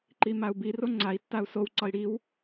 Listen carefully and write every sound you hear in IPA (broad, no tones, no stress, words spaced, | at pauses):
ǃimau̯bi roŋ͡ǀai̯ tːau̯sow ǀɒi̯ɽiw